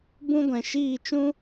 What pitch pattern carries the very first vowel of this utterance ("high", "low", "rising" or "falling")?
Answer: high